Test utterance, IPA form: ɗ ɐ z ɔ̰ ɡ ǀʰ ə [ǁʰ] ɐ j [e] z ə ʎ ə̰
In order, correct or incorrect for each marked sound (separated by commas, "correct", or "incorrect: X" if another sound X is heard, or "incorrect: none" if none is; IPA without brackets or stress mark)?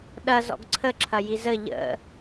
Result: correct, incorrect: i